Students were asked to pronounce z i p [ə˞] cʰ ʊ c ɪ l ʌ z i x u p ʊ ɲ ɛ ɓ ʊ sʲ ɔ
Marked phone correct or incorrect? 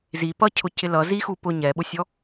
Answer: incorrect